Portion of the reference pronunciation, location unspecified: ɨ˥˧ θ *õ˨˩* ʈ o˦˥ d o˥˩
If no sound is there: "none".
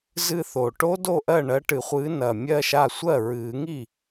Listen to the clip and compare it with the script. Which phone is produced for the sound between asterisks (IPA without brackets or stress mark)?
o˨˩